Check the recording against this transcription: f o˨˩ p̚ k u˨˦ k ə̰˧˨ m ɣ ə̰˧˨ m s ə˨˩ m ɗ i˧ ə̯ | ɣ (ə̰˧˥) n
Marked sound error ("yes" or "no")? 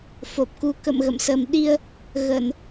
yes